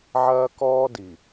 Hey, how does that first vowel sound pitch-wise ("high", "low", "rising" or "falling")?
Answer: high